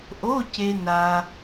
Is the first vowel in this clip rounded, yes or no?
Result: yes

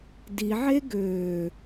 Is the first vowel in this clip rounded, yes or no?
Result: no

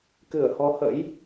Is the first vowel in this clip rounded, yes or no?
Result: no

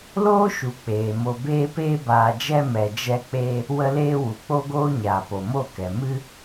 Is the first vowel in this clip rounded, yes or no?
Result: yes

